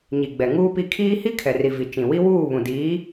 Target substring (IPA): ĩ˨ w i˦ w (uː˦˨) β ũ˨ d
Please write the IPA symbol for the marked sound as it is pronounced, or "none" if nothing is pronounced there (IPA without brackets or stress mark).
uː˦˨